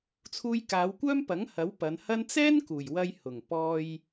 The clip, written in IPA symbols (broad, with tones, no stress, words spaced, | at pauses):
t͡sʰuː˧jkaː˨˧wkʷœː˥mpɐ˨˥ŋ hɐ˨˥wpɐ˨˧nhɐ˥n t͡sɛː˥n kuː˨˩j wɐ˧jhʊ˨˩ŋ pɔː˧j